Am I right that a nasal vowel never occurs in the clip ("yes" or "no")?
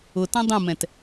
no